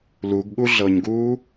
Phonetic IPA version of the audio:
l u ɡ ɠ u ɮ ɤ ɲ ɡ uː

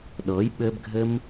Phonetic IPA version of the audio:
ɗ ɤ˨˦ j ɓ ɘ˧ b ɡʱ ɘ˦ m

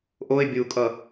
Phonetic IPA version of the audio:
ʔ o ɪ̯ bʲ u kʼ ʌ

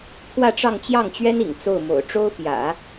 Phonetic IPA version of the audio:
pʰ w ä˥˧ ʈ͡ʂ ɑ˥˧ ŋ t͡ɕ j ɑ˥˩ ŋ t͡ɕ ɥ ɛ˥ n ḭ˨˩ ŋ t͡s o˥˩ ʊ̯ m o̰˨˩ ʊ̯ ʈ͡ʂ o˥ ʊ̯ p j ä̰˨˩˦

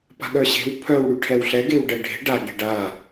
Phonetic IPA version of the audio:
p a̤ ɠ œ ɕ e̤ w pʰ œ w ɽ y ʈʰ ɛ w ɬ ɛ ɡ e w ɖ ɛ ɖʱ e̤ ɖ a ɠ e̤ ɖ a

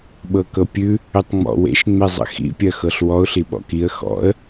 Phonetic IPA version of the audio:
ɓ ɤ k ɤ pʲ ʉ | y tˤ ŋ͡m ɔ̰ w ḛ ʃ ŋ͡m e zˤ ə̰ x ḭ pʲ ɜ x ɤ ɬ w ɔ ʊ̯ ɬ i ɓ ɔ̰ k i ə̯ x ɔ̰ ə̯

